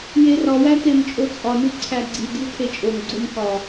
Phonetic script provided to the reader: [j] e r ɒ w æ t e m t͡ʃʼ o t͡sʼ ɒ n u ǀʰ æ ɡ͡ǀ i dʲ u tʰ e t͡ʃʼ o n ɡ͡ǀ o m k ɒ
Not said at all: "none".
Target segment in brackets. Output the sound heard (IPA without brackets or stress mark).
j